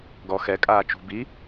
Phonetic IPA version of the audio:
ɡɔ xɛkʼaː t͡ʃṳ bi

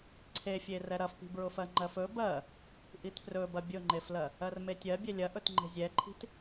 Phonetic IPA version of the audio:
ǀʰefʲe rɛɾɐfpi̤ bɹʊfɜŋ͡ǃɜfɵ bɜ | ʔitprɵbɐ bʲʊŋ͡ǃeflɜ | ɜrmetʲɜ bʲɛlʲɐ ʔɵtŋ͡ǃe̤zʲɛǃʰi̤t

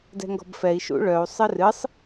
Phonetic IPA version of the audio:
dɛ̤ŋɡɔ̤bfɛi̯ ʃṵɭœu̯ sˤɨrɨsˤ

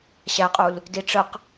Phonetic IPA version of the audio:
ɕæqʼul | diʈ͡ʂəq

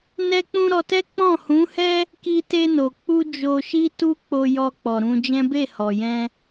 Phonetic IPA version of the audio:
nɛ˧k͡pũ˧ ɾɔ˧tɛ˦ k͡pɔ̃˦˨hũ˨˦hɛ˦ | ki˧ te˧no˨k͡pu˧ d͡ʒo˧ʃi˦ tu˦k͡po˧jɔ˧k͡pɔ˨ ɾũ˧d͡ʒɛ̃˦ be˦˨hɔ˨jɛ̃˧

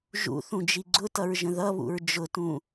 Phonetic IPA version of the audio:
ʒṵθũd͡ʒi ɡ͡ǀʊtʌɹʒə̃ ðʌβṵɹ d͡ʒʊtũ

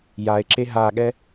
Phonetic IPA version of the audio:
jae̯ǁe ɦaɠɛ

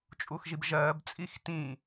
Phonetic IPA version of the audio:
t͡ʃʼuxʒibʒɜːb t͡sʼixtĩ

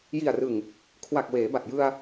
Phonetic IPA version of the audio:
ji˨˩a̯rɯ˨˩ŋ | kʰwa˨˩k̚ weː˩˦ba˨˩t̚ jɯ˧a̯

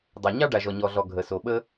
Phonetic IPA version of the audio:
dˤa˩ ɲɑ˥ɖa˩ʒɔ˩ ɲɔ˩ɮɔ˩ ɡʱə˩so˩ɓə˥

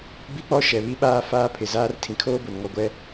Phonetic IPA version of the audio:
bi˦k͡pɔ˦ʃɛ˨βi˦ ɓaː˦faː˦pʰɪ˨ zaː˦rtʰĩ˨ kʰoː˦bʊ˨nŋɔ˨ɡʷɛ˦

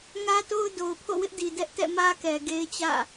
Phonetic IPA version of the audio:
ŋä˦to˦ʊ̯ do˨ʊ̯pʰo̰˦˨wɪ˦ʔdi˨ dɛ˦ʔ tɛ̰˦˨mä˦kɛ˨ ɡe˦ɪ̯t͡ɕä̰˦˨

